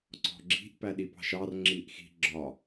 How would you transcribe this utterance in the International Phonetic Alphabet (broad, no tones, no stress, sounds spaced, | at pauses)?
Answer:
ǀ ɔ̤ ɡ͡ǁ i̤ ʔ p æ ɗ i p ɑ̤ ʃ ɑ r ŋ͡ǁ i ʔ x i̤ ɡ͡ǁ ɒ